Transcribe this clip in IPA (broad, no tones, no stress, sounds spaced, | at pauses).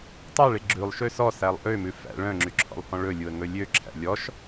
tˤ ɑ ɭ e ɡ͡ǁ ʉ lˠ ʃ ø s ɔ s æ lˠ ʔ ø m ʉ f æ̰ ɭ œ̃ ŋ͡ǁ y ǁʰ ɔ̰ lˠ h ɔ̃ ɭ ɵ lʲ u ə̯ ŋ ɵ lʲ ø ǁʰ æ̰ lʲ ɔ ʃ